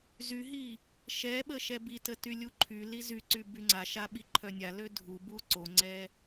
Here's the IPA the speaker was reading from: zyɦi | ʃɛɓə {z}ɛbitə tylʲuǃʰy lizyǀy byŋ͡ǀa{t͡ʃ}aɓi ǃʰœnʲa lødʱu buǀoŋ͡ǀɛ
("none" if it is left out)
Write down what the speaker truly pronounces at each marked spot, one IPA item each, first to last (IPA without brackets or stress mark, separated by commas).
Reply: ʃ, ʃ